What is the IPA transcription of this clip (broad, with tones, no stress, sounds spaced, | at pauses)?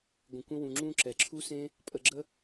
ɡʷ ə̃˧ kʷ ə̃˦ w ũ˧ ŋ͡ǁ ũ˦ ǁ ɛ˨ ǁʰ u˦ s ẽ˦ | pʼ ə˧ ɡ͡ǁ ə˦